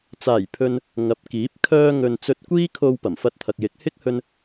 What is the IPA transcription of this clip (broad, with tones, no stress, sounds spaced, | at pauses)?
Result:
t͡s aː˨˩ j pʰ ɵ˨ n | ŋ ɐ˨˥ p̚ k iː˨˥ p̚ kʰ œː˧ ŋ ɵ˨ n t͡s ɵ˧ t̚ kʷ iː˥ kʰ o˧ w p ɐ˨˩ m f ɐ˧ t̚ t̪ʰ ɐ˨ k̚ j ɪ˨˥ k̚ h ɪ˥ k̚ h ɵ˧ n